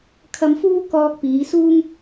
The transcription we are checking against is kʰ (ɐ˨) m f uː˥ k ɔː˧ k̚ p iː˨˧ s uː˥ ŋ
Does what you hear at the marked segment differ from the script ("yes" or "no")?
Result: yes